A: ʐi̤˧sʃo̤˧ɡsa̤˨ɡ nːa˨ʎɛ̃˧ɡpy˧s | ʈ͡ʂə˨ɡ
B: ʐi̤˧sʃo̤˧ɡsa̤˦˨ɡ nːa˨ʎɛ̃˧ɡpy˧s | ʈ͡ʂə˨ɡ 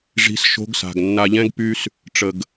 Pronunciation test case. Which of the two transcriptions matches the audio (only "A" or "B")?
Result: A